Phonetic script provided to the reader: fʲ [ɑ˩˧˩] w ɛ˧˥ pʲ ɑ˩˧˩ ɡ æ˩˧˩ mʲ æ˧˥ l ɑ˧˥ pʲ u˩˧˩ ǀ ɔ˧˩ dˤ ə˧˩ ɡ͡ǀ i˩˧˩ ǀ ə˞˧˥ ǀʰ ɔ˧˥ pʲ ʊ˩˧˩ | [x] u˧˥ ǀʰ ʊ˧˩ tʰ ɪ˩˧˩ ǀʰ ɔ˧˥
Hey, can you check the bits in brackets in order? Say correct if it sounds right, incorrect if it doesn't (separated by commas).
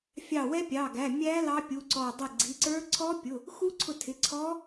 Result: incorrect, correct